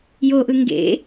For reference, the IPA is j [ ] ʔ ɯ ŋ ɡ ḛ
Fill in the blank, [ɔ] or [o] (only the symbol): o